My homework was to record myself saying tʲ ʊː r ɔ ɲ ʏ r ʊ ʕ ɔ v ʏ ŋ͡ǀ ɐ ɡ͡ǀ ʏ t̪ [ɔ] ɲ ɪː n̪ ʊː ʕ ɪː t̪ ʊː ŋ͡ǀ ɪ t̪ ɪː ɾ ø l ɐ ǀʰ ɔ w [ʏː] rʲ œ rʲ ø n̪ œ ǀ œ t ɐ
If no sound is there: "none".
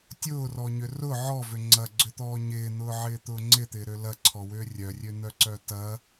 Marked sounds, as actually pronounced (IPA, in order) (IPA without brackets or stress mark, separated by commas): ɔː, ʏː